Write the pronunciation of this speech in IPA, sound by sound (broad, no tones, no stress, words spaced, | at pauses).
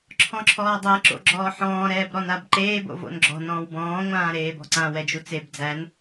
ǁʰɔ̃ǁʰɔːdˤæ ǁo̰ɡ͡ǁɔːħɔ̃ː ɾɛːbɾɔnabǃeː bo̰vo̰nɡ͡ǁɔ̤ nɔ̃ːwbɔ̃ː ŋʷãːɾeːbɔ̤ǀã wɛd͡ʒut͡seb d͡zæn